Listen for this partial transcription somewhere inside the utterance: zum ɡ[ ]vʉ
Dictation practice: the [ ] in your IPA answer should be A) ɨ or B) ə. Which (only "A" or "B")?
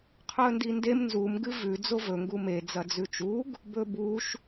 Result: A